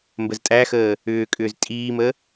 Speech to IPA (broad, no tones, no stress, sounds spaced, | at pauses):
m b ə z tʼ æ x əː | ʏː kʼ ʏː z tʼ iː m ə